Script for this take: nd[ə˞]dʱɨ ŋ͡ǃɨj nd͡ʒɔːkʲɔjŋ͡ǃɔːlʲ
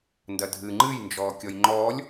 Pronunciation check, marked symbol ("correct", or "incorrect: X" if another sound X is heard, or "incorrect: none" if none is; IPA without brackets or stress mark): incorrect: ɐ